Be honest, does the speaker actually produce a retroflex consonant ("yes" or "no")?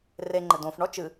yes